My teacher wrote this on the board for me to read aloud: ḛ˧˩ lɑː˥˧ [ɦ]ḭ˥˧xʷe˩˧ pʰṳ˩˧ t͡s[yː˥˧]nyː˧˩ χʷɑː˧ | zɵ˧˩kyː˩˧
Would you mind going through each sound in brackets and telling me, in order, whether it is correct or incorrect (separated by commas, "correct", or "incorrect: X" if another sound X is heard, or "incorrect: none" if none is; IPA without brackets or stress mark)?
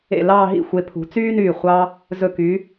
correct, incorrect: yː˥